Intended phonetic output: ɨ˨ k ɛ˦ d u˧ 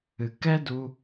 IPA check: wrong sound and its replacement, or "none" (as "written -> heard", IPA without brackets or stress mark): none